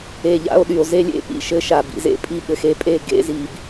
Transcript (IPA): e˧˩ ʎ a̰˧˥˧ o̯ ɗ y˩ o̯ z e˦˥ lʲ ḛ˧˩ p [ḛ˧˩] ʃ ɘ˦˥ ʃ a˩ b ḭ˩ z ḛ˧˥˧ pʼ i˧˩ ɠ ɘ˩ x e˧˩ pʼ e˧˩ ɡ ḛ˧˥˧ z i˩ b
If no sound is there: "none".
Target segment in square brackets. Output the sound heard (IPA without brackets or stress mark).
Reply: ḭ˧˩